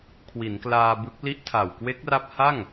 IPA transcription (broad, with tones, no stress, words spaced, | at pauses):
kʰwi˩˦nklaː˧bɯ˦˥k̚ li˦˥ʔtʰa˨˩wkwe˦˥k̚ra˦˥p̚ ha˥˩ŋ